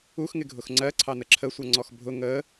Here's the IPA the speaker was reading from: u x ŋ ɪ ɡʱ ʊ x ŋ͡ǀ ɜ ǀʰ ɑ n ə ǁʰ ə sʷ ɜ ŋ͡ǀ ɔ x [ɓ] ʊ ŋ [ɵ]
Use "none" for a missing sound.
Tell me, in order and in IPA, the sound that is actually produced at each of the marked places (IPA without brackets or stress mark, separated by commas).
bʱ, ə